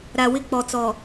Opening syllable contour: low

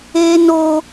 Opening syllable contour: high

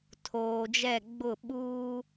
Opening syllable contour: low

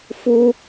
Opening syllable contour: high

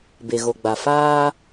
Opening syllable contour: low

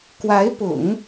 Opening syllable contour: rising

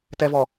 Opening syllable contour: low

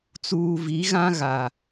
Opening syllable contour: low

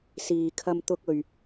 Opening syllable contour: low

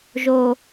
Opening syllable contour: low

